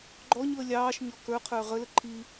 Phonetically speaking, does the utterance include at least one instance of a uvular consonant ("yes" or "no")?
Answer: yes